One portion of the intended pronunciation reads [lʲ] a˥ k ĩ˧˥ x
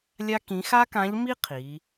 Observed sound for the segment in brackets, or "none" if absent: lʲ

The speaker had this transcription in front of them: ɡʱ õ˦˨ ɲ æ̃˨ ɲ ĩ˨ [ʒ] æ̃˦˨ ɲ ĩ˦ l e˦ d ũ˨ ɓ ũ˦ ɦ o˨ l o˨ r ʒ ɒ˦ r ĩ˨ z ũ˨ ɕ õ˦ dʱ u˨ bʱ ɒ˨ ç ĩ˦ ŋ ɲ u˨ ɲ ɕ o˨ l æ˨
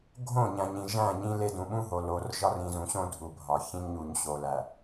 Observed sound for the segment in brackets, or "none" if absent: ʒ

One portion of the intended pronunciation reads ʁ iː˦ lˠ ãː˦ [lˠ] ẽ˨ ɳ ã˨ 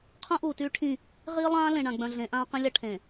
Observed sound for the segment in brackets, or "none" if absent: l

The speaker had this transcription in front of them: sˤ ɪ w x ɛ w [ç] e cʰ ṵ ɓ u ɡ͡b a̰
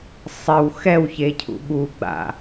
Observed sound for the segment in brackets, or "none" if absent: ç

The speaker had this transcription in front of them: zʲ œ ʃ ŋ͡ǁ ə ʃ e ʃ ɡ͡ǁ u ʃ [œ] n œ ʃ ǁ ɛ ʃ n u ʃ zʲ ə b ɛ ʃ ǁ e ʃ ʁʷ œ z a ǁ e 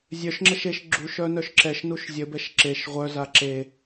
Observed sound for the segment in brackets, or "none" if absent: œ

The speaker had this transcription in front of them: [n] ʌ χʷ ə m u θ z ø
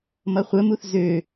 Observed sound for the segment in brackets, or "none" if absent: m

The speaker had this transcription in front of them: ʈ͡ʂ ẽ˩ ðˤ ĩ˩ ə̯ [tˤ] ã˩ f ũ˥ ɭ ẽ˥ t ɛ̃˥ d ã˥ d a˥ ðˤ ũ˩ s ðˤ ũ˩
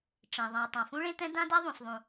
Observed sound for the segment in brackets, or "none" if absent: tˤ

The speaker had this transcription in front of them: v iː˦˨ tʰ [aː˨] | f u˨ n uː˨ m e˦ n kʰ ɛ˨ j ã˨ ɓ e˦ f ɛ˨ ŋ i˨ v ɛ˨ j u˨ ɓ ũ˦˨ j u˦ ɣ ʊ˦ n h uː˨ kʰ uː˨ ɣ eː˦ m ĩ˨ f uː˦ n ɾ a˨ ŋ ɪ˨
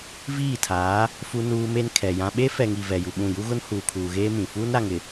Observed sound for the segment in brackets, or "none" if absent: aː˨˦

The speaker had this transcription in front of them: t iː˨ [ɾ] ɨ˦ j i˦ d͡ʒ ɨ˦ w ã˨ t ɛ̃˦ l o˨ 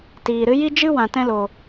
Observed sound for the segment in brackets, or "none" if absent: ɾ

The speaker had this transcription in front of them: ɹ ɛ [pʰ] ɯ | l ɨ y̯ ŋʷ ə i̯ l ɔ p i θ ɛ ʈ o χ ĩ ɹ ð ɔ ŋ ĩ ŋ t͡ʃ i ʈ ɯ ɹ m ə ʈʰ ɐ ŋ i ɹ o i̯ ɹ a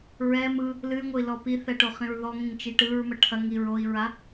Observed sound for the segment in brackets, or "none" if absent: m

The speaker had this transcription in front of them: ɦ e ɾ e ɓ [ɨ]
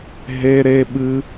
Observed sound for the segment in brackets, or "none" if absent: ɨ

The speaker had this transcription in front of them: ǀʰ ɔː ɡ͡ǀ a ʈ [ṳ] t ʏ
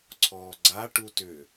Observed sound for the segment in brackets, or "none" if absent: u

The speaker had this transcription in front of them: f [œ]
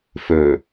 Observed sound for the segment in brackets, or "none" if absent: ɵ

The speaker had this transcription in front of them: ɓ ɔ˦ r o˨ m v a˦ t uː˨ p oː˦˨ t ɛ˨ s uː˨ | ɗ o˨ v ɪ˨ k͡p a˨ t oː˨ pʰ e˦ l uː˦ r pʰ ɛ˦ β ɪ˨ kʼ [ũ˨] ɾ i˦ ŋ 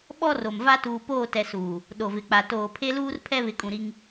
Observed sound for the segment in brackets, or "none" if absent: ũ˨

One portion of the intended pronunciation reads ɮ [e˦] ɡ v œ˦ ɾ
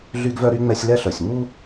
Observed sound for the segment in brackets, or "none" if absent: y˦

